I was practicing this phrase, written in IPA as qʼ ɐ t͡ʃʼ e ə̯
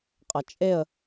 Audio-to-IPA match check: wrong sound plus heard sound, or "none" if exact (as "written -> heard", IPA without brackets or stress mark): none